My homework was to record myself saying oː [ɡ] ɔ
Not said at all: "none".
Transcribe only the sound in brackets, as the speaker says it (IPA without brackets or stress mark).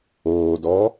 d